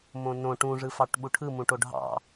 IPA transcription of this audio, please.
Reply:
m õ n õ ʈ ũ ʐ ɯ f ɑ ʈ ɓ u ʈʰ ɯ m ũ ʈ o ɖʱ ɑ̰

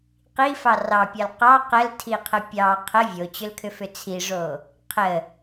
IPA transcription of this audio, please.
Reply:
q i f ɑ r ɑ pʲ ɑ l q ɑ q ə l tʰ i qʰ ə pʲ ɑ qʰ ə vʲ o t͡ɕ ʏ l kʰ ʏ f ʏ t͡sʰ i ʐ o | qʰ ə

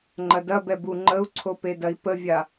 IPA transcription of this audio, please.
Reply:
ŋ͡ǃ ɐ d ɐ b ɛ b u ŋ͡ǃ ə u̯ ǀʰ o p e d ɐ i̯ p ə vʲ a

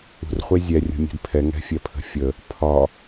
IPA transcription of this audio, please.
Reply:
ṳ r χʷ e zʲ ɛ rʲ ṳ mʲ e̤ d pʰ ɛ ŋ ɛ̤ fʲ ɛ pʰ ə̤ fʲ ə | pʰ ɒ

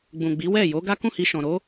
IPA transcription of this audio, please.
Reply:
ɡ͡b ũ˨ ɡ͡b i˨˦ w ɛ˦˨ j o˨˦ ɡ a˦ k ũ˦˨ h i˧ ʃ ɔ̃˨ ɾ o˨˦

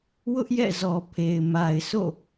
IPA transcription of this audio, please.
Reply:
w ʊ˦ ʔ j ɛ̰˦˨ z ɔ˨ pʰ e˨ ɪ̯ m a˨ ɪ̯ s o̰˦˨

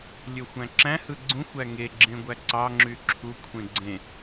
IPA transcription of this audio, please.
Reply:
lʲ ø xʷ æ̃ ǁ æ̃ h ɯ ɡ͡ǀ ũ xʷ æ ŋ e ɡ͡ǁ ẽ ɡʷ æ ǀ ɑ ŋ͡ǁ y ǁʰ u kʷʰ ẽ ɡ͡ǀ ẽ

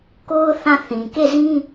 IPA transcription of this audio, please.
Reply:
k o˦ ʊ̯ θ ã˦˨ θ ĩ˨ k e˦˨ z ĩ˦

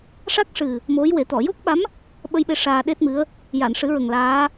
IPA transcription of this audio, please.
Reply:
ʂ a˦˥ k̚ ʂ ɨ˨˩ | m o˧˥ j w e˨˩˦ t̪ ɔ˨˩˨ j o˦˥ k̚ ɓ a˧˥ m | ɓ ə˧ j ɓ e˧ ʂ aː˧ ɗ e˦˥ t̚ m ɨ˧˥ ə̯ | j a˨˩˨ n ʂ ɨ˨˩˦ ɹ ə˨˩ ŋ l aː˧˥

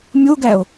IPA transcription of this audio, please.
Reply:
mʲ o ɡ æ o̯

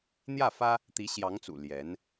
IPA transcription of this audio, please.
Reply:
n̪ j ä˥˩ f ä˥ | t̪ i˧˥ ɕ j ɑ˧˥ ŋ t͡s ṵ˨˩ l j ɛ˧˥ n

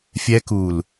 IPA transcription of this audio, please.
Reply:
fʲ ɛ˧ k u˨ l

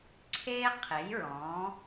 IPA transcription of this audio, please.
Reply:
ǀʰ eː˥ qʰ e˩˥ j ɹ ɔ̃ː˩˥

